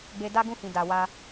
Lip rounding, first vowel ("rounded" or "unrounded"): unrounded